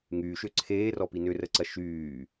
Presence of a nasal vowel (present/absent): absent